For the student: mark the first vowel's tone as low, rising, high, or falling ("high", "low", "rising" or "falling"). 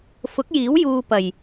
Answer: rising